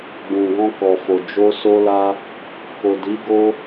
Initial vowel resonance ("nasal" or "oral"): nasal